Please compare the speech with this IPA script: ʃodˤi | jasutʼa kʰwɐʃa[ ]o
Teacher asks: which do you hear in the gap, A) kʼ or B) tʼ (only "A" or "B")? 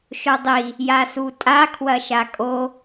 A